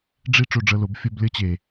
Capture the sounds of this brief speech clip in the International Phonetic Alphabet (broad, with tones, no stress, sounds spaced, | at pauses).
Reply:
ɖ͡ʐ i˦ ʈ͡ʂ o˧ ɖ͡ʐ ɤ˧ l o˨˦ b fʲ o˧ b lʲ ɤ˦ t͡ɕ e˨